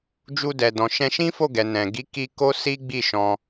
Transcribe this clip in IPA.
d͡ʒu˧dɛ˨dɔ̃˨ ʃɛ̃˧ʃĩ˦ fo˦˨ɡɛ˨nɛ̃˨ ɡi˨˦ki˧ ko˦si˦ɡ͡bi˦˨ʃɔ̃˧

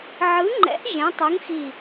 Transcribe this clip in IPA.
ʕɯ˨˥ŋ͡ǃɛ̰˨˥ʔ ʒẽ˨˥tˤu˨˥ŋxi˧˩

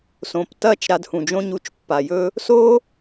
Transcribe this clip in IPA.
sõ˨p tɐ˦˨t͡ʃ ɾa˧dhũ˨d͡ʒõ˦ɲu˧t͡ʃ pːa˨jɵ˦ | so˦

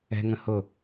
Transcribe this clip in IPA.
ɛ̤ŋə̃ hʊ

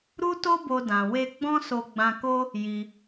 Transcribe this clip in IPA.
ɾu˦to˦bo˧ dã˧ we˧ ɡ͡bɔ̃˦so˧ ɡ͡bã˧ko˦ | ji˧

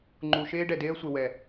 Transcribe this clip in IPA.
ŋ͡ǃu˨ʃeː˦ ɖɛ˨deː˦ə̯sʷe˨ wɛ˨

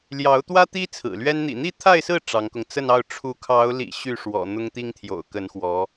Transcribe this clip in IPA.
ljɑ˧˥ʊ̯t̪wä˥ t̪i˥ t͡sʰɹ̩˨˩lɥɛ˥n n̪ḭ˨˩n̪i˥˧ t̪ʰa˥˧ɪ̯sɹ̩˥˩ ʈ͡ʂɑ˧˥ŋkʊ˧ŋ t͡sə˥˧nɑ˥˩ʊ̯ ʈ͡ʂʰu˧˥kʰɑ˧˥ʊ̯lḭ˨˩ ɕy˥˩ʂwɔ̰˨˩ n̪ʊ˥ŋt̪i˥ŋt̪ʰjo̰˨˩ʊ̯ kə˧˥nxwɔ˧˥

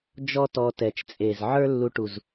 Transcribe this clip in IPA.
d͡ʒɔ˦tɔ˧ tɛ˨t͡ʃt͡sʼe˨z ʕə˞˦ lːu˧ʈu˨z

